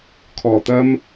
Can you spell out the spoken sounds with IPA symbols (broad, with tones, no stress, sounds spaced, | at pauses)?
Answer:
kʰ ɔː˨˩ t̪ ɐ˥ m